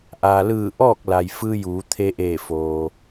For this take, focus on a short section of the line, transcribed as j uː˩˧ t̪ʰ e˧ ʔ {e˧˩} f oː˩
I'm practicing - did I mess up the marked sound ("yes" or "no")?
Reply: yes